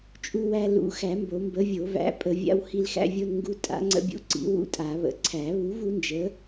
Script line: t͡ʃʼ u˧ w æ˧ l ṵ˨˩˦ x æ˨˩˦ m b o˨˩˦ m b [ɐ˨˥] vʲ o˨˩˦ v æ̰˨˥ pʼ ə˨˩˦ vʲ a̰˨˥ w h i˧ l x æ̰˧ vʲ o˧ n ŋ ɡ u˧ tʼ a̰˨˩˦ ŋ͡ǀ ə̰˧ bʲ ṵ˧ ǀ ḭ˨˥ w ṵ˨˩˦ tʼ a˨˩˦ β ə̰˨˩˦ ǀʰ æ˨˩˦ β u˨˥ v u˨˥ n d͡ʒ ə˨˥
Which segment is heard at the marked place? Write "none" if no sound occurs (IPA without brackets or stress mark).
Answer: ə˨˥